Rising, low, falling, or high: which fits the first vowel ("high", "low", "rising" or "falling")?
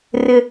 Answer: high